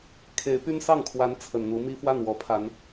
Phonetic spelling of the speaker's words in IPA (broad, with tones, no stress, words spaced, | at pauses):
kʰe˧˥ɪ̯py˥nsɑ˥˩ŋkʰwa˧˥n t͡sʰə˨˩nn̪u˧˥ mi˥ fwa˥˩nwɔ˧˥pʰa˧˥n